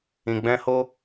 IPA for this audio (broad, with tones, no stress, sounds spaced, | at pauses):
ĩ˧ ɡ͡b ɛ̃˦ h o˦